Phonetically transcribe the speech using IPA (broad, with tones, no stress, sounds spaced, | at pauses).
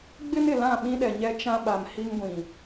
ɡ͡b ɪ˦ n ɪ˨ l ã˦˨ ɓ ĩ˦ ɗ ɛ˨ ɲ ɛ˦ t͡ʃ ã˦ ɓ a˨ m h i˦ ŋ ɡʷ ĩ˨